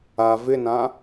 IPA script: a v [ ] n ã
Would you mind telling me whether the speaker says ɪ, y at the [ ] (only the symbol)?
ɪ